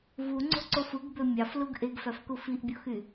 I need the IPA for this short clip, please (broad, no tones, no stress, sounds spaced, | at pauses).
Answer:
v u ŋ͡ǀ o̤ ǀ o f ɯ ɡ b ø mʲ ɑ f l u ɡ ʔ e ɡ f æ f k u f i ʔ bʲ o x y